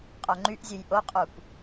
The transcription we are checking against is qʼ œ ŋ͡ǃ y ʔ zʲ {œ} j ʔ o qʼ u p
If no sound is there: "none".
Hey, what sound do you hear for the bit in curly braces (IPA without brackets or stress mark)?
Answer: ø